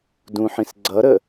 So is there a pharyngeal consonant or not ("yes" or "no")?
yes